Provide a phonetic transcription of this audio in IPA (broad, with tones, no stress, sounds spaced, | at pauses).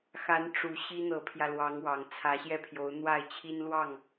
x a˧˥ n ʈ͡ʂ u˨˩ ɕ i˥ n̪ ɤ˧˥ pʰ j ä˧ l w ɑ˧˥ ŋ w ɑ˨˩ ŋ t͡sʰ ä˧˥ ɕ j ɛ˥˩ pʰ j o˧˥ ʊ̯ n̪ w a˥˩ ɪ̯ t͡ɕʰ i˥ n l w ɑ˥˩ ŋ